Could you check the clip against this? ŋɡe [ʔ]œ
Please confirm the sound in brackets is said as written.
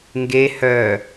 no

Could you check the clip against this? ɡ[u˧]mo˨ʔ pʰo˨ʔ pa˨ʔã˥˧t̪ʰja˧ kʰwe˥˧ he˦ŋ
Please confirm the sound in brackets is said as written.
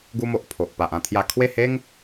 yes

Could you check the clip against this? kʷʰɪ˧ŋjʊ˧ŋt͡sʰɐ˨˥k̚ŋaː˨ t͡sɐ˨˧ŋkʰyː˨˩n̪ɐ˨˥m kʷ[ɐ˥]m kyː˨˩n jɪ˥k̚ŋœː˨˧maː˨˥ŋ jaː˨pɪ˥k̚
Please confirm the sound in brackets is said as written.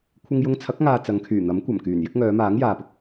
no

